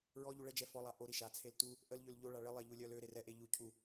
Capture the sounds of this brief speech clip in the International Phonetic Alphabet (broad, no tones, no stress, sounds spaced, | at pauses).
ɹ ɔ ʎ u ɭ ɛ d͡ʒ ɛ f ɔ lˠ a ʔ o ɾ i ʃ a t͡sʰ e l t u | ʔ ə l ʎ ø l ʎ o ɭ a ɭ ə lˠ ɛ ʎ u lʲ œ l ø ɾ e r ɛ ʔ e ʎ u cʰ u